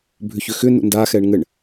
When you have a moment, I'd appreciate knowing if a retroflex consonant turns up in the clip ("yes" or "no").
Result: yes